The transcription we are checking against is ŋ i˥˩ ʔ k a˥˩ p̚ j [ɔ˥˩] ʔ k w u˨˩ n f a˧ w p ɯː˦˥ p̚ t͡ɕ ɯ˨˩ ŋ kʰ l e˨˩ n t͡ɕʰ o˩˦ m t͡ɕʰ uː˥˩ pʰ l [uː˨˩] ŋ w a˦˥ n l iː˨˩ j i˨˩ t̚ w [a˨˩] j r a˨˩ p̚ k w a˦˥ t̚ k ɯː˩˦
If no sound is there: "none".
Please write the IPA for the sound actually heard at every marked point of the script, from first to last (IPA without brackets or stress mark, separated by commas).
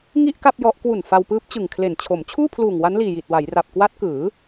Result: ɔ˦˥, uː˨˩, a˩˦